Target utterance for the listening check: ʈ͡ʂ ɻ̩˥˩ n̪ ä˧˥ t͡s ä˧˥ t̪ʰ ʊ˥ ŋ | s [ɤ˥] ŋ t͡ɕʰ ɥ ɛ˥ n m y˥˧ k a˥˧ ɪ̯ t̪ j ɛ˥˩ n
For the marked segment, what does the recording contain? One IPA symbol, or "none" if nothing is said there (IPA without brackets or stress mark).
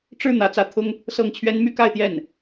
ɤ˥˩